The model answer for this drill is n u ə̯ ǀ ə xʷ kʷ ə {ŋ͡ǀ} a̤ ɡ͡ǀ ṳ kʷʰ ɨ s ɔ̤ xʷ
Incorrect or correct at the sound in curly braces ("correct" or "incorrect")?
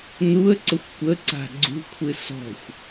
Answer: incorrect